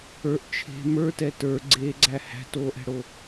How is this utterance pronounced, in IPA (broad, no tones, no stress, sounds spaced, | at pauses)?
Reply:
ə˞ ʔ t͡ʃʰ e̤ m ə˞ t ɛː t ə˞ ɡ͡ǀ eː ɡ͡ǀ æ h æ̤ t oː ʔ ɛ̤ ɽ o